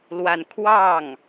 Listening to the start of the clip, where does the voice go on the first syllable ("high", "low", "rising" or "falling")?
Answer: falling